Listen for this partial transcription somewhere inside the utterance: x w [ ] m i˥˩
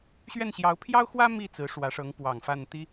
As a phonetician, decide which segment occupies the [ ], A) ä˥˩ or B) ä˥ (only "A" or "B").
B